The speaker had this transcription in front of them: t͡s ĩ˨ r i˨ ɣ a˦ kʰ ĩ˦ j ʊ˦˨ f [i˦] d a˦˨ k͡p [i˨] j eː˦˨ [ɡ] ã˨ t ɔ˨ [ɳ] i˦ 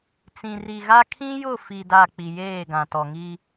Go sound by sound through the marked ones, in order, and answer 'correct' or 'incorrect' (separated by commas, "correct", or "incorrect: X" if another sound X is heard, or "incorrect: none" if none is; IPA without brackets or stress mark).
incorrect: i˨, correct, correct, incorrect: ŋ